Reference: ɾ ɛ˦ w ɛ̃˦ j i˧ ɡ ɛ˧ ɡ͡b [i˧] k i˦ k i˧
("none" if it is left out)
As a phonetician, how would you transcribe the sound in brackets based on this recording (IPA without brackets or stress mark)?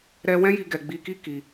i˧